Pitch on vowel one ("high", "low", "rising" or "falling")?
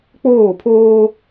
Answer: falling